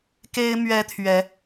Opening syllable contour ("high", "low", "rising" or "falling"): high